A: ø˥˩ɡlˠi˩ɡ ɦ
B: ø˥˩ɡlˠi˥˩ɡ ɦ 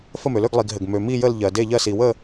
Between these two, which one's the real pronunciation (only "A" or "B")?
A